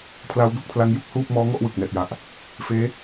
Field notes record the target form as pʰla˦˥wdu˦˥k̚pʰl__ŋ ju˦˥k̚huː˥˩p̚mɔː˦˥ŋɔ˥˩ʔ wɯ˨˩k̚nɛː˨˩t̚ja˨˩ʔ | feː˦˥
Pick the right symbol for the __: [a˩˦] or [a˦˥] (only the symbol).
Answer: a˦˥